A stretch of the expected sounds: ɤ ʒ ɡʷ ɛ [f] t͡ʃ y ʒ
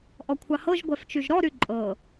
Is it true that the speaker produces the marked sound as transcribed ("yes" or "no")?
yes